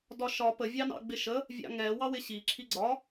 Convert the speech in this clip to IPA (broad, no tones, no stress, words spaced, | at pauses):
dɒʃɒ pə vʲɑnɑ̰ɡ͡bɪʃə | vʲɑ̰ŋɛ wɑwɪɕi ǁʰiɡ͡ǀɒ